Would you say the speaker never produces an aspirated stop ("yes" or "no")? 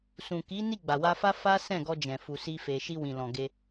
yes